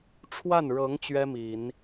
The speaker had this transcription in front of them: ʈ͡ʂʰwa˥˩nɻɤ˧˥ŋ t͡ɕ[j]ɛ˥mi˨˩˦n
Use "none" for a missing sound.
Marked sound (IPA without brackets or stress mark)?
ɥ